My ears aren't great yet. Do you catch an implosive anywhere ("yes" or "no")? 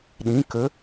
yes